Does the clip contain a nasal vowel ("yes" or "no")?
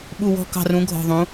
yes